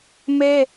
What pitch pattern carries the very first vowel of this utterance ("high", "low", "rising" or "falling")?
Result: high